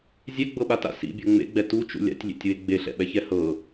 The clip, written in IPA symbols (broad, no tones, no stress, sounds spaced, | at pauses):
zʲ ɛ ɡ͡b ɤ ɓ a t a̰ s ḭ bʲ ɤ ŋ͡m ḛ ɡ͡b ɛ t u t͡ʃ ṵ lʲ a̰ tʲ lʲ ḛ tʲ w e ɡ͡b e ɬ ɛ̰ ɓ ɛ ç ɛ h ɤ